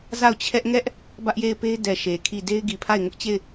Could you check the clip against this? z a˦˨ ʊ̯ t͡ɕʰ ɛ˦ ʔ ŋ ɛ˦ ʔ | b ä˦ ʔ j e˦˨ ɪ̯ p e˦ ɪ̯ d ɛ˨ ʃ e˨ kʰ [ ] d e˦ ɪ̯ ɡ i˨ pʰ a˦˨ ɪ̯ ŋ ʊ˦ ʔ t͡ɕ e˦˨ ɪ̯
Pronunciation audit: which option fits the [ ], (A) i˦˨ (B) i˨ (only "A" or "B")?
A